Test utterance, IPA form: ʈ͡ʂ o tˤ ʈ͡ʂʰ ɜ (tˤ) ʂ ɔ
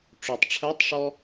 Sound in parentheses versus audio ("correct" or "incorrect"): correct